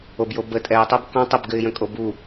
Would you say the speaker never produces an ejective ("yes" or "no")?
no